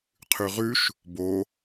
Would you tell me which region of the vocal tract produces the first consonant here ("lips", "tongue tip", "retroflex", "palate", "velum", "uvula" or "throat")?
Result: uvula